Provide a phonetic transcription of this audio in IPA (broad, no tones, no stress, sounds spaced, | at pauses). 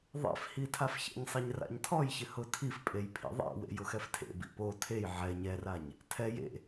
ðˤ ɛ̰ f h i tʰ a f ç ɛ̰ ɲ sˤ e ɲ r a̰ ɲ tʰ ɔ j ç ɪ h ʊ tʰ i f pʼ e j pʰ ḭ ðˤ ɛ̰ w ḛ j ʊ x ɛ f tʰ ḛ b ḭ p o tʰ e j ʕ ɛ ɲ ɛ r a ɲ | tʰ ɛ j ḛ